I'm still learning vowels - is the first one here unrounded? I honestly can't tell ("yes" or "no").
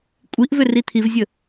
yes